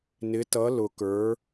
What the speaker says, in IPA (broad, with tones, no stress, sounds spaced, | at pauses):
n ɪ˨˦ t ʌ˨˦ l ʊ˨ k ə˞˨˦